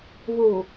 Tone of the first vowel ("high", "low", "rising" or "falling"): low